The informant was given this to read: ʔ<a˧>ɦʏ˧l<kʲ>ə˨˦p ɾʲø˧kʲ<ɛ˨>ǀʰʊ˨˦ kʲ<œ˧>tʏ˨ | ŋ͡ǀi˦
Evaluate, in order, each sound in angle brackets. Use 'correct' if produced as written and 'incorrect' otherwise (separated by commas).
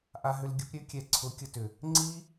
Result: correct, incorrect, correct, incorrect